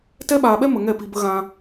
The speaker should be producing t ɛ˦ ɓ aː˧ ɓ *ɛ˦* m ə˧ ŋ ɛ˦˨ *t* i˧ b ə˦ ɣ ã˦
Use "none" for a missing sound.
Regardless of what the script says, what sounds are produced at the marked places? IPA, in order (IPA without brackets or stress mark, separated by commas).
ɛ˦, p